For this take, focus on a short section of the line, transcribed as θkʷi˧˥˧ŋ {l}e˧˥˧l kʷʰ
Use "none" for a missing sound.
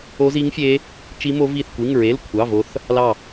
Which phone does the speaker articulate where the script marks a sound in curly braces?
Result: ɹ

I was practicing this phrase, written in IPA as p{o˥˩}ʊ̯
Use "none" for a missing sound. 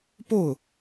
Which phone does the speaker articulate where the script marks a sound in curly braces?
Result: o˥˩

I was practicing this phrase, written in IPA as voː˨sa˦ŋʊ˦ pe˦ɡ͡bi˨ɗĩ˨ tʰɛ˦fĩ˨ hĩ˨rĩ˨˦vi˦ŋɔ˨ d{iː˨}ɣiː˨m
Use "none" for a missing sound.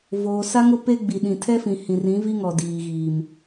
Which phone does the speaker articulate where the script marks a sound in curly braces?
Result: iː˨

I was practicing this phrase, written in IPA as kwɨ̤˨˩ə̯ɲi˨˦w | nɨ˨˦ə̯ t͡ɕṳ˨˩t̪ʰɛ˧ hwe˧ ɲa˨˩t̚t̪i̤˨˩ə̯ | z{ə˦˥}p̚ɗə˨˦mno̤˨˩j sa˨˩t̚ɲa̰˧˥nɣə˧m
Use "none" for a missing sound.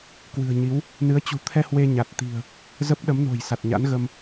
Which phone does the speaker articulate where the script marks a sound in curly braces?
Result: ə˦˥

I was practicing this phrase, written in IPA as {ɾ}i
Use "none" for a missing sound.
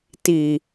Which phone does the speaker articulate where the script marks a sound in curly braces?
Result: t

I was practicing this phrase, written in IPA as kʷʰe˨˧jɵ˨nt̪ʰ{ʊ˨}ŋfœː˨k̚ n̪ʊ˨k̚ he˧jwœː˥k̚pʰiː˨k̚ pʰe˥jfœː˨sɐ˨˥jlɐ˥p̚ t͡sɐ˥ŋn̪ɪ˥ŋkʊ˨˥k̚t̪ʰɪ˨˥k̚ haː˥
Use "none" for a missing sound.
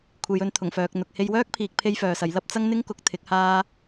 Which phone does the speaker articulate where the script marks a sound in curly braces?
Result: ʊ˨˩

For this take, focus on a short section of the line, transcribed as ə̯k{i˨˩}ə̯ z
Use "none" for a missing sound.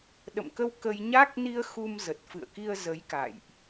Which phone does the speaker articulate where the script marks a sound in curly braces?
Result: i˧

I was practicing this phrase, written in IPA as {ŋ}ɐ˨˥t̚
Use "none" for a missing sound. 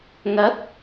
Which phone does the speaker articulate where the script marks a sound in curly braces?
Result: ŋ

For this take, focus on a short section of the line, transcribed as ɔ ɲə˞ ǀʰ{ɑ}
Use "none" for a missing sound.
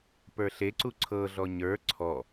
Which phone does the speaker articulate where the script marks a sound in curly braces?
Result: ɔ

